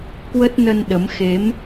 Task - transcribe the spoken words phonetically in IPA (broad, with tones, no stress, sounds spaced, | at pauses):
k w ə˦˥ t̚ n ə˧ n ɗ ə˨˦ m x e˨˦ m